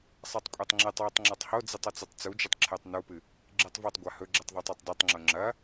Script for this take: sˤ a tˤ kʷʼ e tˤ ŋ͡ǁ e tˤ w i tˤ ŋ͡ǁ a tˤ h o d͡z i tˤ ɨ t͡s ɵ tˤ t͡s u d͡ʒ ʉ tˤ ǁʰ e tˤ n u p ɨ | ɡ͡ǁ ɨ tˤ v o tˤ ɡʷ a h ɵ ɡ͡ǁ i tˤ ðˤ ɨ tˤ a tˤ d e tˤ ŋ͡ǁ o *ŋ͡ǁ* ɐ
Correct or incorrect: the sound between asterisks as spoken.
correct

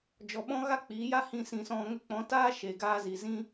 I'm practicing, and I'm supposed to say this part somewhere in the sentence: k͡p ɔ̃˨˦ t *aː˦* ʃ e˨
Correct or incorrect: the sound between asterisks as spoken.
correct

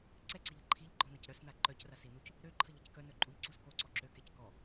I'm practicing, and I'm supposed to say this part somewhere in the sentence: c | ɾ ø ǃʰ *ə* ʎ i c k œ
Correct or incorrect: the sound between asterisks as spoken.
correct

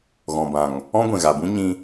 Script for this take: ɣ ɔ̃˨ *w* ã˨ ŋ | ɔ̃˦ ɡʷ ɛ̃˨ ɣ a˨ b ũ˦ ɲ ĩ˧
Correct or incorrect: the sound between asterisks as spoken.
incorrect: b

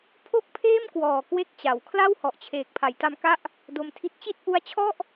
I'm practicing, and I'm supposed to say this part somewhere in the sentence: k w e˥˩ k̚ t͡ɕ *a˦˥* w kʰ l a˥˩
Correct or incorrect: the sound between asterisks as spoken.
incorrect: a˨˩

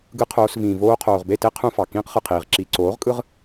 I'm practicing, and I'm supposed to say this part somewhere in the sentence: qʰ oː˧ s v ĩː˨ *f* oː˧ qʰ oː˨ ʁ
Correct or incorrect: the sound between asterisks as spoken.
incorrect: v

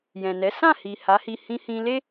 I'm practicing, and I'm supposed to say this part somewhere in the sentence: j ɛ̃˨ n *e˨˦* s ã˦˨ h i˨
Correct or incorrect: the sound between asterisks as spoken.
incorrect: ɛ˨˦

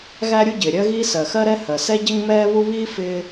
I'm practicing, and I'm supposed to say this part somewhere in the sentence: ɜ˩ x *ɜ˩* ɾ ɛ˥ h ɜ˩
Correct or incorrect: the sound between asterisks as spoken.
incorrect: ɜ˥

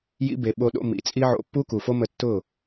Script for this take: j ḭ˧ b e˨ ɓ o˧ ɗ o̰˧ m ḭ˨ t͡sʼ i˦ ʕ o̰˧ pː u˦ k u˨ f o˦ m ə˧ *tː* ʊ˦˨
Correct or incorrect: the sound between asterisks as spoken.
correct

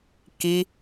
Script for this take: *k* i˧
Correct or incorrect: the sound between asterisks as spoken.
correct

